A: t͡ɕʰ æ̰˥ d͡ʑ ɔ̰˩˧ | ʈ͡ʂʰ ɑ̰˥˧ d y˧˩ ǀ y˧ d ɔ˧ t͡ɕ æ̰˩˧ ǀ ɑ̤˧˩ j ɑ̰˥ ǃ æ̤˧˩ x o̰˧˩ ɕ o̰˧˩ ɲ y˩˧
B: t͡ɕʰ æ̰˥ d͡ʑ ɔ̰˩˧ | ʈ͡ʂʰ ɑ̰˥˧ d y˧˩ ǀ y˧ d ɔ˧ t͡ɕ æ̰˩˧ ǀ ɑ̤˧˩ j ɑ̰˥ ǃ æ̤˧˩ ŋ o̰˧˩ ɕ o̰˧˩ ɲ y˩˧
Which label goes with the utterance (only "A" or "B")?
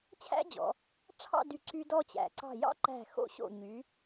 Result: A